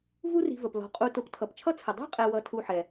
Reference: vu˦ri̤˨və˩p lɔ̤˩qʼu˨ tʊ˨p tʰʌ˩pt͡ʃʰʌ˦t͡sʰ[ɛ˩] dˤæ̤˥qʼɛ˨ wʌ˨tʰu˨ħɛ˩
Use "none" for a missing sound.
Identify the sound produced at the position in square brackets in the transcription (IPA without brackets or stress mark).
ə˩